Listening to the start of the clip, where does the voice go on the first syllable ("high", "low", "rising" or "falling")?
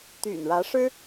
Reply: low